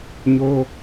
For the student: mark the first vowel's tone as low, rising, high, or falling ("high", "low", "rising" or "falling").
high